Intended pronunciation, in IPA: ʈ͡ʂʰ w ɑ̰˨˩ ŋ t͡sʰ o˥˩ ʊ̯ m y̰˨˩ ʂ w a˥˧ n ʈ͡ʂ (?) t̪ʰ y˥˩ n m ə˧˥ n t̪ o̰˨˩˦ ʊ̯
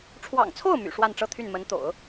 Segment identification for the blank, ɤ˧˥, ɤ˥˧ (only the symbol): ɤ˥˧